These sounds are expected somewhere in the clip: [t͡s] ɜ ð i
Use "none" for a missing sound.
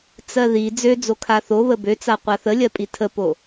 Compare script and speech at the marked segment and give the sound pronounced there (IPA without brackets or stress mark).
t͡s